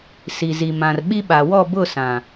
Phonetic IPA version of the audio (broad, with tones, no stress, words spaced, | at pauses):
si˨zi˨mã˨r ɓi˦ɓa˨ wɔ˦˨bʊ˦˨ sã˨